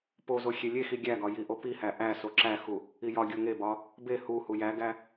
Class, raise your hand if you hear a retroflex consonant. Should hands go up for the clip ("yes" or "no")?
no